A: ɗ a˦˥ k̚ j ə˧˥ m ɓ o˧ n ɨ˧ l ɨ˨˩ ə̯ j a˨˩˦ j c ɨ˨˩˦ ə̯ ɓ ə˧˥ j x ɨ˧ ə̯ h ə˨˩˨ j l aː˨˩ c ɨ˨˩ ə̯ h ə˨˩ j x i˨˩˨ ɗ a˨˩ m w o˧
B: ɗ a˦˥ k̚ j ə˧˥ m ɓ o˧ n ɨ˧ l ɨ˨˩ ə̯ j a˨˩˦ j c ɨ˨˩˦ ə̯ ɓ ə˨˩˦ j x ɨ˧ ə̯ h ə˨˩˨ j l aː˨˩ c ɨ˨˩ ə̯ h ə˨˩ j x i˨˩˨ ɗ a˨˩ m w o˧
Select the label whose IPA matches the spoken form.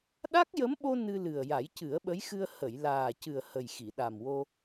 A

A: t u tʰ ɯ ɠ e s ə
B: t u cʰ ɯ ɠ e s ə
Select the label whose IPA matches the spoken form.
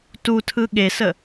A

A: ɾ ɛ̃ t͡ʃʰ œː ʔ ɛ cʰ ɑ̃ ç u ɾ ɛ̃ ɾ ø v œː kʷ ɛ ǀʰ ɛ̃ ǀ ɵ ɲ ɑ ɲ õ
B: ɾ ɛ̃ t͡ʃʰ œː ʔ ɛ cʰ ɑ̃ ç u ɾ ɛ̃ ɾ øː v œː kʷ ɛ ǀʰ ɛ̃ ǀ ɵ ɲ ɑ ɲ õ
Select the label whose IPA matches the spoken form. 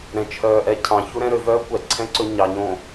A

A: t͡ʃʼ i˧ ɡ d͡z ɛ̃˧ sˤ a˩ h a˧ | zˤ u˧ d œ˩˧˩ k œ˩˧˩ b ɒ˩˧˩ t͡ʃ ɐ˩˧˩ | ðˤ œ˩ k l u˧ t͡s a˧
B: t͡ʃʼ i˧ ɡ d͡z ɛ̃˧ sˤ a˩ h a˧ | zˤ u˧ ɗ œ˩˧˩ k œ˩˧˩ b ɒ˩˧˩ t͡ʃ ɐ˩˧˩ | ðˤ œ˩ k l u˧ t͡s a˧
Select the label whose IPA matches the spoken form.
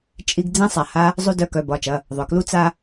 A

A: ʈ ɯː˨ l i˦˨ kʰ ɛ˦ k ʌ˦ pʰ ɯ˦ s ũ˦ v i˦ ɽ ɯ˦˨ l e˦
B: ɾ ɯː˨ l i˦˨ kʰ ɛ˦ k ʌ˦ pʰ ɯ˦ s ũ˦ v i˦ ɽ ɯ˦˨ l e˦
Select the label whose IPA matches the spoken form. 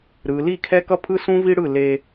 B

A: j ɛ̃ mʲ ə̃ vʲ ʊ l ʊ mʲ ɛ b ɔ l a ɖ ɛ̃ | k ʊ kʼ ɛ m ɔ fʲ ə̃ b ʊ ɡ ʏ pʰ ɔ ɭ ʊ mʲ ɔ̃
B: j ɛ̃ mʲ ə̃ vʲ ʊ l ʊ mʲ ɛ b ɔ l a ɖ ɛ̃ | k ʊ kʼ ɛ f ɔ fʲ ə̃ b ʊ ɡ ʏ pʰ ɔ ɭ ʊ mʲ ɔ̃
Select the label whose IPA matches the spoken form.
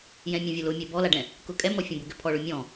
A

